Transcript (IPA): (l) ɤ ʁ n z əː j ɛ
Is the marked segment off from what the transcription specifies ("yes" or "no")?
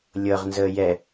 yes